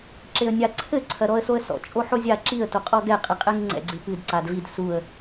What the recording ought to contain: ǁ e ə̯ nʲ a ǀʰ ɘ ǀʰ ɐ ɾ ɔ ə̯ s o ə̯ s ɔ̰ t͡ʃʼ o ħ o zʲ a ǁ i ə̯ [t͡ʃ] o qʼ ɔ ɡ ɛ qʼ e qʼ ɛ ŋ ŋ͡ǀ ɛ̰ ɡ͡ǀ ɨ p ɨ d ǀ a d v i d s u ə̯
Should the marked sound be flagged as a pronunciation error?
yes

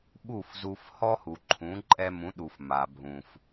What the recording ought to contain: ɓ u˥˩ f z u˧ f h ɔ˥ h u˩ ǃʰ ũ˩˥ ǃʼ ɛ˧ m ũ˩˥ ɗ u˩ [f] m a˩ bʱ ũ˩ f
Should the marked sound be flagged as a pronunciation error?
no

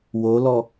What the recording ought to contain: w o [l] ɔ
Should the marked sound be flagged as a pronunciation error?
no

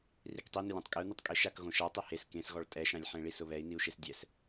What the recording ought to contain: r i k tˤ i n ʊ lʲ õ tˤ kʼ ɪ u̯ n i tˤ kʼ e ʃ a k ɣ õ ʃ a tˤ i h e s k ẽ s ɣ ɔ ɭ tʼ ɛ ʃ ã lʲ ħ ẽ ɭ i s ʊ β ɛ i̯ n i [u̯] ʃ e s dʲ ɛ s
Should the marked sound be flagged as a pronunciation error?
no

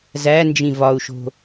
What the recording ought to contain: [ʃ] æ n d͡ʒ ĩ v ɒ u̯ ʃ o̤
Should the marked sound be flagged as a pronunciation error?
yes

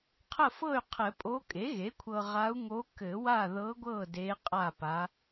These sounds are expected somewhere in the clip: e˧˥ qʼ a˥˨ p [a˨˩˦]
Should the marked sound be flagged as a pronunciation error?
yes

